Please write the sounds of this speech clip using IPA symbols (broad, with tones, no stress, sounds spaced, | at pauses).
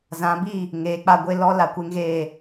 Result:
z ã˨˦ b i˦˨ | ŋ eː˨ k͡p a˦˨ ɡʷ e˦ l ɔ˦ l a˨ kʷ e˦ ŋ ɣ eː˦˨